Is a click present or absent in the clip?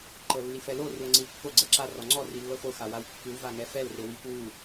present